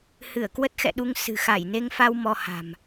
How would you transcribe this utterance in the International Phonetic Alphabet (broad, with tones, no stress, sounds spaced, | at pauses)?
h ɨ˧˩ ə̯ k w ə˦˥ t̚ x ɛ̰˧˨ ɗ u˧ ŋ s ɨ̤˨˩ x a˧˩ j n e˧ ŋ f a˧ w m ɔ˧ h a̤˨˩ m